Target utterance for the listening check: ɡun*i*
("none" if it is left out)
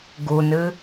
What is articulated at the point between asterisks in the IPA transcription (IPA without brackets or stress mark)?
ɨ